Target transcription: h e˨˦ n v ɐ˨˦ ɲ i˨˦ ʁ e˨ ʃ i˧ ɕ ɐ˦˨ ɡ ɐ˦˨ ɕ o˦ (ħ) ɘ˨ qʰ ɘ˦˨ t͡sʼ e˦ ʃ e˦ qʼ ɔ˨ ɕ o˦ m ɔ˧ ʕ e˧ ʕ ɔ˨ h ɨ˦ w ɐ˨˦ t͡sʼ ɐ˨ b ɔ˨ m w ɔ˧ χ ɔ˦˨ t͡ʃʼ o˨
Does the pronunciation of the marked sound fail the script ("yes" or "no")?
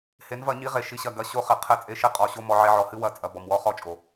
yes